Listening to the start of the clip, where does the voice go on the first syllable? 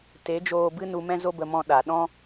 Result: rising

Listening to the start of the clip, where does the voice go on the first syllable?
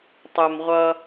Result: low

